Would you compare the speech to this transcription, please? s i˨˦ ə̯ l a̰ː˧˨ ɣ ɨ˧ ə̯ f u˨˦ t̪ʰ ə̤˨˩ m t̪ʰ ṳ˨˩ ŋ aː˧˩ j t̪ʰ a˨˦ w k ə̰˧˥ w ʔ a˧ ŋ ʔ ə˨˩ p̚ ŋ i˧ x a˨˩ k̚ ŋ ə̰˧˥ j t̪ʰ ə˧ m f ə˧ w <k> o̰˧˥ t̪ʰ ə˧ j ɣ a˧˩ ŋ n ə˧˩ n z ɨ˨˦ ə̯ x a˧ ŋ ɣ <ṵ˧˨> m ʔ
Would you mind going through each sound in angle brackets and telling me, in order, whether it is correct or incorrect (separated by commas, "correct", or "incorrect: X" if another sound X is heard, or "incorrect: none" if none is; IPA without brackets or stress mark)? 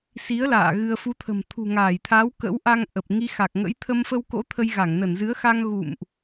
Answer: correct, correct